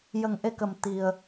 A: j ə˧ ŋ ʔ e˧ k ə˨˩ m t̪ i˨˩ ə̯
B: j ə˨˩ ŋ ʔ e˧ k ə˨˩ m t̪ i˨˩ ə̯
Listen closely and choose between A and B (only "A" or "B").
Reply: B